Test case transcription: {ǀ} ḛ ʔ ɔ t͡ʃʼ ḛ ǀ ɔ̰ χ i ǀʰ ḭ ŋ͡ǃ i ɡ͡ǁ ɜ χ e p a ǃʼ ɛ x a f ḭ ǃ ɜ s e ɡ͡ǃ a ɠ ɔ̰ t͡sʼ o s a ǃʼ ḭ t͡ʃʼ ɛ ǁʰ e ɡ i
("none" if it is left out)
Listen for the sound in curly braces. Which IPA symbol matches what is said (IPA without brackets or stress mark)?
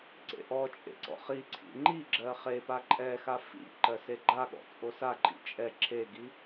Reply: ǀ